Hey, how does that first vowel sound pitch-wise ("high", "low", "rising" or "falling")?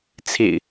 low